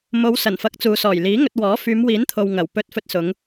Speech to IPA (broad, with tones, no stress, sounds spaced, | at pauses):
m o˨˧ w s ɐ˨˩ n f ɐ˨˥ k̚ t͡s uː˨ s ɔː˨˩ j l iː˨˥ ŋ ɵ˧ t̚ w ɔː˨˥ f yː˨˧ m w iː˨˥ n t̪ʰ o˨ w ŋ ɐ˨˩ w p ɵ˧ t̚ f ɵ˧ t̚ s ʊ˨˧ ŋ